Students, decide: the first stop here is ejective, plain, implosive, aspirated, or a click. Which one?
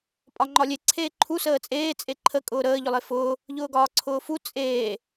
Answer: ejective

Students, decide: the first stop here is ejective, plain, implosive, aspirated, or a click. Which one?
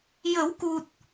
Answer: plain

